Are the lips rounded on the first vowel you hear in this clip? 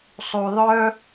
yes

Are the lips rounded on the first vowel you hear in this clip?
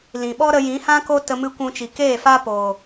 no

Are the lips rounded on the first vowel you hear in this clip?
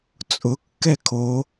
yes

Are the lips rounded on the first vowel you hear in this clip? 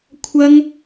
no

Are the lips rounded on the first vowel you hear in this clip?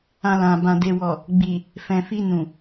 no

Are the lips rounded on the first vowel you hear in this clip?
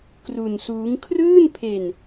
yes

